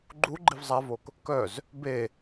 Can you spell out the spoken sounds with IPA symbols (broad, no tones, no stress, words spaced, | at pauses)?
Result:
ɡ͡ǃu ɡ͡ǃivzˤavok | kœz | be